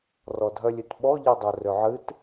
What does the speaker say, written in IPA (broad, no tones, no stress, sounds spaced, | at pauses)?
r ɔ dʱ œ lʲ ɨ t ɓ ɔ ʎ i dˤ œ r ø ʕ ɨ t